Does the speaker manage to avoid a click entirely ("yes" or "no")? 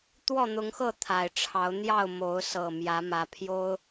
yes